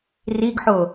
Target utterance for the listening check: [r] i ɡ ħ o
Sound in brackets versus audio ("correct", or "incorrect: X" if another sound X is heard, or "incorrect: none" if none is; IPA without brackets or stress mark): correct